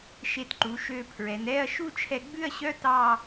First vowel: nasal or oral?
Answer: oral